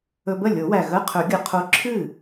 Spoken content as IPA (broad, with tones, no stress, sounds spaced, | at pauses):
ɵ˧ b ə˥˩ lʲ o˨˩˦ w æ˨˩ ɣ ə˧˥˧ qʰ ɵ˨˩˦ ɡʲ ə˨˩ qʰ o˧˥ ǁʰ ɨ˥˩